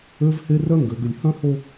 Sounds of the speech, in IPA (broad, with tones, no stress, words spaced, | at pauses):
ø˦vhe˦ rœ˦ŋɡø˨ ɡʏ˨lʲhœ̃˦ho˦